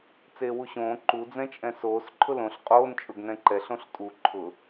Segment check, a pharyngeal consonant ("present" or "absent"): absent